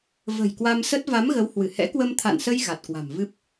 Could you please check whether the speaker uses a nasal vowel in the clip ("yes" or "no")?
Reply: no